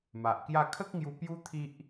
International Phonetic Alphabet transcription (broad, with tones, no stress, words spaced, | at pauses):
ma˨ʔkja˥˧ kʰə˦k̚ŋju˧ pju˦t̪ʰi˦ʔ